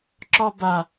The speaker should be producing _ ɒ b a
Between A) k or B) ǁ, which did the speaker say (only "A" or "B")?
B